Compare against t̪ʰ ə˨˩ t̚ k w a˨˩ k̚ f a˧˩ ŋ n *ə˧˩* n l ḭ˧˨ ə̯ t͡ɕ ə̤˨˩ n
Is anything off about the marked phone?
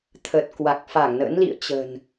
yes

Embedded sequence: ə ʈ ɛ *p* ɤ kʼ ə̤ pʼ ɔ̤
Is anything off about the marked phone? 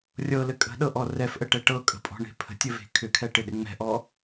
yes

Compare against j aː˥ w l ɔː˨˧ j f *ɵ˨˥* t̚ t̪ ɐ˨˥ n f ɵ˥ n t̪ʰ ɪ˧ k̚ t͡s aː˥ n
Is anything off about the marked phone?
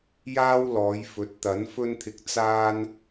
no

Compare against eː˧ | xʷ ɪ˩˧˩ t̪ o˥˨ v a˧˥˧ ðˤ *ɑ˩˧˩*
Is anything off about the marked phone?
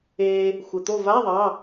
no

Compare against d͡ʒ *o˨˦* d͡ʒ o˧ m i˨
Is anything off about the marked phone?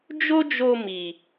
yes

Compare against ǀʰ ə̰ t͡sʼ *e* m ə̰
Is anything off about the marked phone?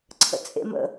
yes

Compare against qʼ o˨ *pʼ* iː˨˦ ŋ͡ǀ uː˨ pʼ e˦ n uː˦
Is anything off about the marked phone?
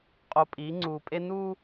no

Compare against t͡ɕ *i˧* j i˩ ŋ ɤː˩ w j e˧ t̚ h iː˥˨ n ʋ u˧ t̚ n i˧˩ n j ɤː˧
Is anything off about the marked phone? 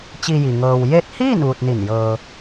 no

